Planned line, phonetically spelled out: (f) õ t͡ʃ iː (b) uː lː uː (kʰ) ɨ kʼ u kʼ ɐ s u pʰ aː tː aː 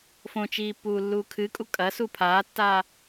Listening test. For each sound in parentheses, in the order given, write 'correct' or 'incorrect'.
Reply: correct, incorrect, correct

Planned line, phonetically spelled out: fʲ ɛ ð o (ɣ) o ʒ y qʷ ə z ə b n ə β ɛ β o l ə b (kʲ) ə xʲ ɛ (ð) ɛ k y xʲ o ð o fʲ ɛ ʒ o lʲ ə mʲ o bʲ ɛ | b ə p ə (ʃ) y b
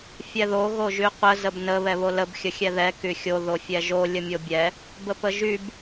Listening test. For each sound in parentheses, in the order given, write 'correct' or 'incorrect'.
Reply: correct, incorrect, correct, incorrect

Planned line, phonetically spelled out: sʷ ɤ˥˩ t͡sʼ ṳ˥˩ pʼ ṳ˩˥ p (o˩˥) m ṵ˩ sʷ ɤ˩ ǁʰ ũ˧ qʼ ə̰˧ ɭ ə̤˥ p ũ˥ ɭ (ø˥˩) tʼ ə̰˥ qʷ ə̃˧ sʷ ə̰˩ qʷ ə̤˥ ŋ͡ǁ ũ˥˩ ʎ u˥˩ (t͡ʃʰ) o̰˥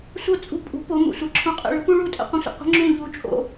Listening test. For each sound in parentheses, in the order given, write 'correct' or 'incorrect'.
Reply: correct, incorrect, incorrect

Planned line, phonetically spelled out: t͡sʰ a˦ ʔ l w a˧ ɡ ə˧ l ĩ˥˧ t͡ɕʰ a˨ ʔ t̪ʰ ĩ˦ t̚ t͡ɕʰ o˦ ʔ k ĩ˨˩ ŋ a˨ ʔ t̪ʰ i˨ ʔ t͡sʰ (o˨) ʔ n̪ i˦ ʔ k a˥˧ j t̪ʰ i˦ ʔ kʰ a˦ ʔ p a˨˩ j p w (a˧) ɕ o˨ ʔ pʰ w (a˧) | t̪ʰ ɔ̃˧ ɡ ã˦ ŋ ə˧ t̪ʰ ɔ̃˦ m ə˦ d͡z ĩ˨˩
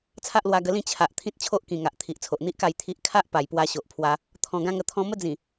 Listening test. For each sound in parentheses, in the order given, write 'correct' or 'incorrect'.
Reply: correct, correct, correct

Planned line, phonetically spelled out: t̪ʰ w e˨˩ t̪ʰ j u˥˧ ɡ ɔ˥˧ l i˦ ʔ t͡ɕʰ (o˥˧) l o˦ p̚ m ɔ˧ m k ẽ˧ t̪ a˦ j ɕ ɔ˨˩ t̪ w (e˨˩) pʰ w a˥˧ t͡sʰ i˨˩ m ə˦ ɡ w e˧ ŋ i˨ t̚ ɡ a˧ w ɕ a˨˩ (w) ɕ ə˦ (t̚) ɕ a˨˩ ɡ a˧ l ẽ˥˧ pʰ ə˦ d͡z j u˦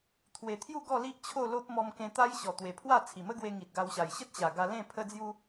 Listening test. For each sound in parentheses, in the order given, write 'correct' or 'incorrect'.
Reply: correct, correct, incorrect, correct

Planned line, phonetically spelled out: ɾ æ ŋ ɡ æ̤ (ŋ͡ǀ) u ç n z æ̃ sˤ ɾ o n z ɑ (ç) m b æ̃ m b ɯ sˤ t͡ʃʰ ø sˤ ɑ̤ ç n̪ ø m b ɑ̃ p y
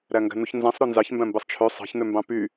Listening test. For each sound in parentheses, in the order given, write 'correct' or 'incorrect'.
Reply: incorrect, correct

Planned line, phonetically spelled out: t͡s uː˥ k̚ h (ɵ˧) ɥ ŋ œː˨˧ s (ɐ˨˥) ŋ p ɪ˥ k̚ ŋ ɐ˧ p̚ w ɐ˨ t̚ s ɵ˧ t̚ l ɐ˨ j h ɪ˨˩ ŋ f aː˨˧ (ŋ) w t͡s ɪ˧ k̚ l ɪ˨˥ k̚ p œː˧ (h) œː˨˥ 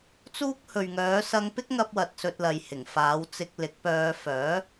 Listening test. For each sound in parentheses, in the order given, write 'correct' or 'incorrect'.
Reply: incorrect, incorrect, incorrect, incorrect

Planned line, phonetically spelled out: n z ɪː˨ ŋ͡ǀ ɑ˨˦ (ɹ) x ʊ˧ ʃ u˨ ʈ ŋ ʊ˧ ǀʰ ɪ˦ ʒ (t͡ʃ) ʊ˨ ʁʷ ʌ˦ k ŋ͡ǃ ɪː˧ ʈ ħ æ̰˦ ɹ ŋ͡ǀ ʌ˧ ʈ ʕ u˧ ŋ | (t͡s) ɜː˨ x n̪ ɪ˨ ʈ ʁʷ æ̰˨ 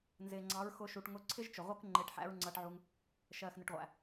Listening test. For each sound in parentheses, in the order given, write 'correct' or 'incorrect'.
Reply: correct, correct, incorrect

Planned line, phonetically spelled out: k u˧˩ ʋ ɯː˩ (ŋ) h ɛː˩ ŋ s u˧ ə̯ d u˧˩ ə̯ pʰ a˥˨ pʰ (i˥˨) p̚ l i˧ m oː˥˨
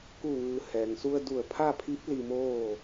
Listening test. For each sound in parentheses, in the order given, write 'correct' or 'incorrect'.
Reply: incorrect, incorrect

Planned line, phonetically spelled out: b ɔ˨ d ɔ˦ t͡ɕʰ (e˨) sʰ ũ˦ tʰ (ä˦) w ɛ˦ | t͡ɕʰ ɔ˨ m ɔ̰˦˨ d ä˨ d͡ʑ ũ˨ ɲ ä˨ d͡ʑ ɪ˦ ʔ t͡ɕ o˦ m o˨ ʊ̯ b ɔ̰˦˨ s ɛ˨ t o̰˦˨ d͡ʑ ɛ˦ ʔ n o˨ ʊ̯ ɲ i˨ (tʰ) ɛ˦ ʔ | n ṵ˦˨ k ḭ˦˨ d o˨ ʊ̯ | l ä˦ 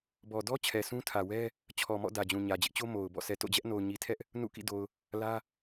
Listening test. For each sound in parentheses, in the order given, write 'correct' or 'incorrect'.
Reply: incorrect, incorrect, correct

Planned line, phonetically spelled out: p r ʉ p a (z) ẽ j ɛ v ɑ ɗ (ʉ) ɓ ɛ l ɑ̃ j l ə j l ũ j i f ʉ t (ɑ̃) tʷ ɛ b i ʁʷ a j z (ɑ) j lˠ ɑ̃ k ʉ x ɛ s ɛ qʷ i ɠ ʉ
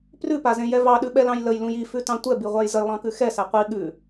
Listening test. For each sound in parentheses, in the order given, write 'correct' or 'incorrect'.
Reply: correct, correct, correct, incorrect

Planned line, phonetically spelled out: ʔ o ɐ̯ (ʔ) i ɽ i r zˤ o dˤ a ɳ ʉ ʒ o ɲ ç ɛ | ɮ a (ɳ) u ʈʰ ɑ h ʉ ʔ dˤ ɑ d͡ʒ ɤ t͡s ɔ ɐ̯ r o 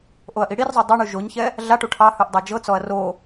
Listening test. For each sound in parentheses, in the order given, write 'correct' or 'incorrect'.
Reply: correct, incorrect

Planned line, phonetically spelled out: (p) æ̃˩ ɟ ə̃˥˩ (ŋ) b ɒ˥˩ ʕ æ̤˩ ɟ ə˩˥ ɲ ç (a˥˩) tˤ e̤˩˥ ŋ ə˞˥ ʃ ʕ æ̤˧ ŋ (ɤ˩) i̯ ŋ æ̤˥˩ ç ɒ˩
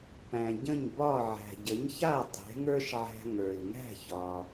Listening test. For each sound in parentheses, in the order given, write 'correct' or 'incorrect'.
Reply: correct, incorrect, correct, incorrect

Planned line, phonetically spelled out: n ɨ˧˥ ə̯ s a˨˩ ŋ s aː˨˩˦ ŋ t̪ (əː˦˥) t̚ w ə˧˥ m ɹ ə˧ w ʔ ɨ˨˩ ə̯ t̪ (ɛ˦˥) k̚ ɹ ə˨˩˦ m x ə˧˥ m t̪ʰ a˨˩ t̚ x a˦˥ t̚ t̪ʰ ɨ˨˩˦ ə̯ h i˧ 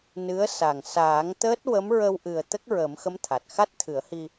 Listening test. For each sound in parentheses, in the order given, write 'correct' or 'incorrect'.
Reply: correct, incorrect

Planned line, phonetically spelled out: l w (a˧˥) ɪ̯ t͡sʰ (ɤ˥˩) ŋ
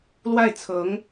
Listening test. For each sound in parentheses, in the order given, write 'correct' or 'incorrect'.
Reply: incorrect, incorrect

